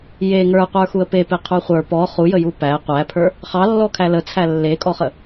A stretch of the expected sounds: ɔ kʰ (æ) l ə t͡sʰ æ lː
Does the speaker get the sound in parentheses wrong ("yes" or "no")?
no